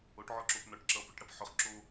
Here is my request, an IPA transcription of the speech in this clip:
o ʈ ʕ ɔ ǁ o p n ɔ ʈ ǁ ʌ p ʊ ʈ ɽ ɐ p ħ ʊ χ ǁ o

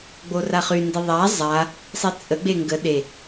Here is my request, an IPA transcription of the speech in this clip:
ɡ͡b o r a χ y n d i ðˤ a zˤ a | sˤ i t͡sʼ ə ɡ͡b e ŋ ɡ ə ɗ e

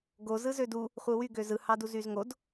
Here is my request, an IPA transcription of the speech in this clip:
ɡ o z ɯ z ø d u | χʷ ɯ w y ɡ ø z ɯ h ɑ d u z y z ŋ o d

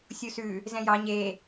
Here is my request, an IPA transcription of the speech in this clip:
sʲ u s ʉ | z ɛ̃ j ɑ ɲ e

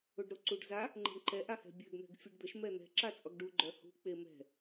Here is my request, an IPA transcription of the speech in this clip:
o ɖ ɾ o ǀ u ɖ z a | ŋ͡ǃ ɛ̤ ɳ ǃ ɛ ʔ a h ɛ̤ bʲ ø ɡ n̪ ɛ̤ ɡ fʲ u ɖ d̪ ə ʃ m ɛ n̪ ɛ̤ ǁ a t͡sʼ ɔ ɡ ɖ u ɡ͡ǃ œ h ṳ k͡p e m ɛ̤

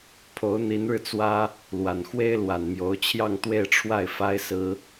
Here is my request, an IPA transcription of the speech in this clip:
pʰ o˧˥ ʊ̯ n̪ i˧˥ n ɻ ɻ̩˧ t͡s w ä˥ | l w a˨˩ n x w e˥ ɪ̯ l w a˨˩ n m j o˧˥ ʊ̯ t͡ɕʰ j ɑ˥˧ ŋ t̪ w e˥˧ ɪ̯ ʈ͡ʂʰ w a˥˩ ɪ̯ f a˥ ɪ̯ s ɹ̩˥

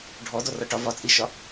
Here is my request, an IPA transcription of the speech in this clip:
ɖʱ ɔ d ɔ r ɒ ʈ ɒ v ɒ t͡sʼ i ʃ ɒ

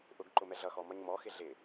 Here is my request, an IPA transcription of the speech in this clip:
ʔ ʊ ɡ ǃ ʊ m ɛ ɮ ʌ x ɔ m ʌ ɲ m ɔ x ɪ ɮ ɪ

